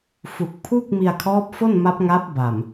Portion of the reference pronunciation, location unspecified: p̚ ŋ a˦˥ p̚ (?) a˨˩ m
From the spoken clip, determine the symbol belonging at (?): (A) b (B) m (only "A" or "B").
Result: A